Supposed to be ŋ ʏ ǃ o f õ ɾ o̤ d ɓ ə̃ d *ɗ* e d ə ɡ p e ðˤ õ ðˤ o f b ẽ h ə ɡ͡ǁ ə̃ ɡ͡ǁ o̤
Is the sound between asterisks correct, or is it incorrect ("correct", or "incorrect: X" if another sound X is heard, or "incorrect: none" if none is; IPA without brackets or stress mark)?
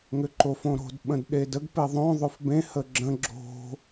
correct